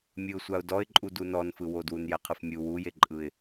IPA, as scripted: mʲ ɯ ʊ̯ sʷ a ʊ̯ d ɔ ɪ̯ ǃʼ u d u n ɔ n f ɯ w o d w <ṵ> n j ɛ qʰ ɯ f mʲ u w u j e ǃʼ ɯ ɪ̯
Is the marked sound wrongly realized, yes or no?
yes